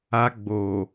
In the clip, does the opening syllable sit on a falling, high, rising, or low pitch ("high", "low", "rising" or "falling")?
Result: high